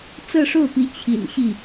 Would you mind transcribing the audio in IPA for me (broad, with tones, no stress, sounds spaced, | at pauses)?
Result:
t͡s ɤ˥˧ ʂ o˥˩ ʊ̯ p i˧˥ t͡ɕʰ ḭ˨˩ n ɕ i˥˩